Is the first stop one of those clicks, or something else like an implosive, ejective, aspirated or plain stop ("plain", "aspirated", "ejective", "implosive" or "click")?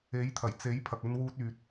aspirated